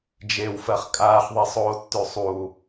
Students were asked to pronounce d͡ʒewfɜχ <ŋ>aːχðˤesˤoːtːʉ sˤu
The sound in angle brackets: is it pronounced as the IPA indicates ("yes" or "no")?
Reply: no